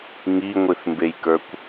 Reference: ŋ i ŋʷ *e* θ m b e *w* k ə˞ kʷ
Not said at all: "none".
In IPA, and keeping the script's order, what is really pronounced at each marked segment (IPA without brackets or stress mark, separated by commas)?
ɨ, j